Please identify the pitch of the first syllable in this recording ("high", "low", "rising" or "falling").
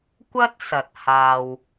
high